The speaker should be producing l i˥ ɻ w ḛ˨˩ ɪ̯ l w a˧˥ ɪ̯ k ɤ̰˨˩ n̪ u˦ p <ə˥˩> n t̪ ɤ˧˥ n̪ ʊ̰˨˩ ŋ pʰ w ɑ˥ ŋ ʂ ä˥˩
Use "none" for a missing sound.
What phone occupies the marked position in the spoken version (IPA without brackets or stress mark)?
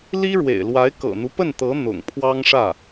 ə˥˩